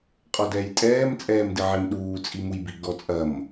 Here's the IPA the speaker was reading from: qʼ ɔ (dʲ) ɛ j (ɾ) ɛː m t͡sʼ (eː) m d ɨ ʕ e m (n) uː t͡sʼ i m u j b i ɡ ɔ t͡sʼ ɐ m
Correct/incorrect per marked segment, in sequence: incorrect, incorrect, incorrect, incorrect

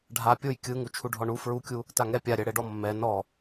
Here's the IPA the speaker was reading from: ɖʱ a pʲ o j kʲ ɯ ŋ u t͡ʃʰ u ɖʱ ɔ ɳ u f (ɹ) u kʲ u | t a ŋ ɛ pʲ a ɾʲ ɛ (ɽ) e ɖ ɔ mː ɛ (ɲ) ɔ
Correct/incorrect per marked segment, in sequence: correct, correct, incorrect

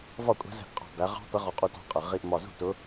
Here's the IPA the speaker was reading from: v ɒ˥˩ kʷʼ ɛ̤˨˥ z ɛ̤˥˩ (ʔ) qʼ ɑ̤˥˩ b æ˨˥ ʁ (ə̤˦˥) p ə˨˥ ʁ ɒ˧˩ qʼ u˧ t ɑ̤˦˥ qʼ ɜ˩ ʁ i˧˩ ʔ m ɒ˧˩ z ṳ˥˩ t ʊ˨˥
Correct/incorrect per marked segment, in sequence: correct, incorrect

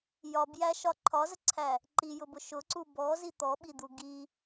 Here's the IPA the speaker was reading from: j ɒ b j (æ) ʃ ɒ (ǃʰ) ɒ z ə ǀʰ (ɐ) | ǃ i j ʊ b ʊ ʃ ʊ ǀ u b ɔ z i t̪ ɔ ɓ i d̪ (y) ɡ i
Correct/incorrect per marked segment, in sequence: correct, correct, incorrect, incorrect

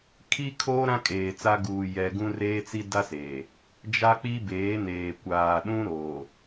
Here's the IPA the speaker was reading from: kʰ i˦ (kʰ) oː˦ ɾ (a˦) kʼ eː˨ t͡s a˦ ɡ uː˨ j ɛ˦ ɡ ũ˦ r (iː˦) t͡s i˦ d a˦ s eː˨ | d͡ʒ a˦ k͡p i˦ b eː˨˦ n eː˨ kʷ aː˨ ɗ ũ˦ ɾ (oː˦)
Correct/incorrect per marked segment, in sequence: correct, incorrect, incorrect, incorrect

